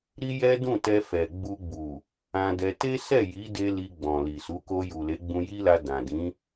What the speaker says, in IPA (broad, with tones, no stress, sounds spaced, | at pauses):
ɾ i˦ j ɛ˦ d ũ˦˨ t ɛ˧ f ɛ˨ ɡ͡b u˧ ɡ͡b u˨ | ã˧ d ɛ˧ t e˦ s ɛ˦˨ j i˨˦ d e˧ l i˧ ɡ͡b ɔ̃˨ l i˨ s u˨˦ k o˧ j u˨ l e˨˦ ɡ͡b ũ˧ j i˦ l a˧ d ã˨ d ĩ˨˦